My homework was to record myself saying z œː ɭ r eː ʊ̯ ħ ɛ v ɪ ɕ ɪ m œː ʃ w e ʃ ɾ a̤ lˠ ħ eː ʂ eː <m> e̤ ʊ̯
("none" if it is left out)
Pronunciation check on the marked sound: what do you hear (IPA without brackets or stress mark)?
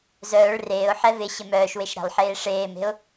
m